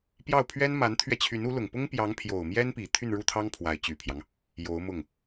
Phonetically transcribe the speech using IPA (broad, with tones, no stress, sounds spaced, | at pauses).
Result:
p j ɑ˥˩ ʊ̯ pʰ ɥ ɛ˥ n m a˧˥ n t̪ʰ ɥ ɛ˧ t͡ɕʰ y˧˥ n u˧˥ l ʊ˨˩ ŋ p ʊ˥ ŋ p j ɑ˧˥ ŋ pʰ j o˨˩ ʊ̯ m j ɛ˥ n p i˨˩ t̪ʰ y˥˧ n ɻ u˥˩ t̪ʰ ɑ˥ ŋ pʰ w a˧˥ ɪ̯ t͡ɕ y˨˩ pʰ j ɑ˦ ŋ | j o˧˥ ʊ̯ m ʊ˥˩ ŋ